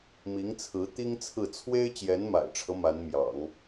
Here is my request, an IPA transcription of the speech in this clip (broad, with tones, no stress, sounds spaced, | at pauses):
m i˧˥ ŋ t͡sʰ ɹ̩˧˥ t̪ i˥ ŋ t͡sʰ ɹ̩˥˩ t͡sʰ w e˥ ɪ̯ t͡ɕ j ɛ˧˥ n m a̰˨˩ ɪ̯ ʈ͡ʂʰ ɤ˦ m a˧˥ n m j ɑ̰˨˩˦ ŋ